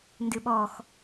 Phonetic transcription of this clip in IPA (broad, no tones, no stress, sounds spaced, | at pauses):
n d ɨ ɓ ɔ x